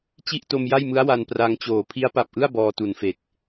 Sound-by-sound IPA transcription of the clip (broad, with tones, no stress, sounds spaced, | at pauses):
t͡ɕ i˥˩ ʔ t o˧ m j a˥˩ j m ɯ˦˥ a̯ w a˧ n p r a˧ ŋ t͡ɕ oː˨˩ pʰ i˦˥ a̯ p a˨˩ p̚ ʔ ɯ˥˩ a̯ b ɔː˧ t u˨˩ n f e˨˩ k̚